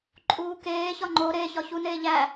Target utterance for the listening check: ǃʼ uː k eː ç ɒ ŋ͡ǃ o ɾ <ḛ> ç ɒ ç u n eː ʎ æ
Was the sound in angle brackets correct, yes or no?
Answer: no